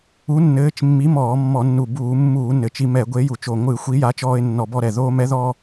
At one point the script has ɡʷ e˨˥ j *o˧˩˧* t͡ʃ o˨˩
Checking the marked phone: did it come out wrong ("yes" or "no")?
yes